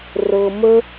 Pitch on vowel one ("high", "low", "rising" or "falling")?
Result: low